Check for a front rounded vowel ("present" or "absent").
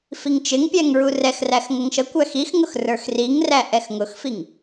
absent